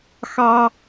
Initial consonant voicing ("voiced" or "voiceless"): voiceless